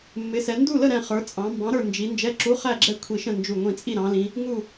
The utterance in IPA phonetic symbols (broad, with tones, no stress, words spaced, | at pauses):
mːɪ˩˧sɛ˩˧ ndu˥˨lə˥˨ɾɛ̃˧˩ χə˞˩˧t͡sʼɑ̃˩˧mbɑ̃˨˥ ɾə˞˥˨nd͡ʒi˨˥ nd͡ʒɛ˧˥˧ǁu˧˥˧χæ˥˨ɡ͡ǁɛ˥˨ kʷʰi˧˩ʃə̃˥˨nd͡ʒu˧˩ ŋʷĩ˧˩t͡sʼi˥˨ ɾɑ̃˩˧lĩ˩˧ | ŋu˧˩